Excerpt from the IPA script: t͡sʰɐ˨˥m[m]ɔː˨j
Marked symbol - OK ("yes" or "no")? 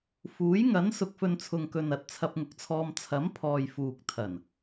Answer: no